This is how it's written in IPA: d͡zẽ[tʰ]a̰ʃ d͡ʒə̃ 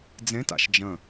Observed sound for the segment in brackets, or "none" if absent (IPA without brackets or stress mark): t